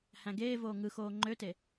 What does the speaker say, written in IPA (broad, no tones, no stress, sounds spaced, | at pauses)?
h æ̃ ɡ eː v oː ŋ ɯ x oː ŋ͡ǃ ø t e